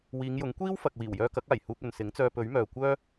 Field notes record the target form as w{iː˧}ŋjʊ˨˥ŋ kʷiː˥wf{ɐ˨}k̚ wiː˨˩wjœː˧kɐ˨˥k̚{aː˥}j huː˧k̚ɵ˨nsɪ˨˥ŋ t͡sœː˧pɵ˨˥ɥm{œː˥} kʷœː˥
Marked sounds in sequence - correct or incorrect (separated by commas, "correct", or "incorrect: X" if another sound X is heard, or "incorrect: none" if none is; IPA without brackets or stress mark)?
incorrect: iː˨˧, correct, incorrect: aː˨˩, incorrect: œː˨